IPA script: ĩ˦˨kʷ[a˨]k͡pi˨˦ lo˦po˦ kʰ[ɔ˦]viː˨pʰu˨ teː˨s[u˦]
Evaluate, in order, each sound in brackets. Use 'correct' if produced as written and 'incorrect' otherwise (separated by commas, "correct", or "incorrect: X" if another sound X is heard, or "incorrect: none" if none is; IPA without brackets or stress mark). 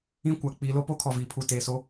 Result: correct, incorrect: ɔ˨, incorrect: o˦